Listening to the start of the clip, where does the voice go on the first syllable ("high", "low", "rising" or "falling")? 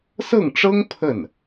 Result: falling